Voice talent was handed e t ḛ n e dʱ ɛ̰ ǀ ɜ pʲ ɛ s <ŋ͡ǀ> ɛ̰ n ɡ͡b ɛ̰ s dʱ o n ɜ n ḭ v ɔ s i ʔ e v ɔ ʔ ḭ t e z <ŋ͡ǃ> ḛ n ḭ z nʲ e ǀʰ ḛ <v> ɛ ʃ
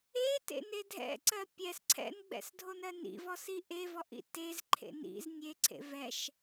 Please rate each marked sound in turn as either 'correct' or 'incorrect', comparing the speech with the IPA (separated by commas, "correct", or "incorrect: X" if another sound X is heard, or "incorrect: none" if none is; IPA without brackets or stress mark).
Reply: incorrect: ǀʰ, incorrect: ǃʰ, correct